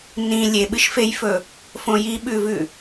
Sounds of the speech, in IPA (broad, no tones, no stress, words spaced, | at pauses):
nĩ lʲeɓɨʃfejfɵ | fõjiɓʉvʉ